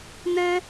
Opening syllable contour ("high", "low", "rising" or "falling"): high